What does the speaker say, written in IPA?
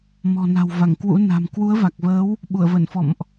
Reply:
m ɔ̤˨˩ n a̤˨˩ w v a˧˩ ŋ k w ṵ˧˥ n a̤˨˩ m k w u˨˦ ə̯ v a˨˩ k̚ v əː˨˦ w | ɓ u˧˩ ə̯ v ə˧˩ n f ɔ̰˧˨ m ʔ

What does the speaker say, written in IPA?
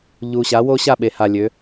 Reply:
ʎ u˨˩ ɕ a˩˥ w oː˦ ɕ a˥˩ ɓ e˩˧ h a˨˩ lʲ ø˩˧

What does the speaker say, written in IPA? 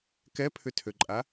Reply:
k ɛ pʰ ʏ tʰ ø ǃʼ a

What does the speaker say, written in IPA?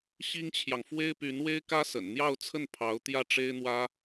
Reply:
ɕ i˥ ŋ t͡ɕʰ j ɑ˨ ŋ f w e˥ ɪ̯ p y˧˥ n w e˥ ɪ̯ k ä˥ s ə̰˨˩ n n̪ j ɑ˥˧ ʊ̯ t͡sʰ ə˥˩ n pʰ ɑ˧˥ ʊ̯ t̪ j ä˥˩ ʈ͡ʂ e˥ ɪ̯ n̪ w ä˥

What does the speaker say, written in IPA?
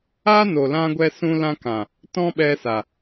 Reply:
aː˦ n o˨ l ã˧ ɡʷ ɛ˧ s ũ˧ l ã˧ k ã˨ | t ɔ̃˦ ɓ ɛ˧ s a˨

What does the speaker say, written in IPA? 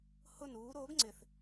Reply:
h ʊ n uː ɾ o ɡ ŋ͡ǀ ɪ θ

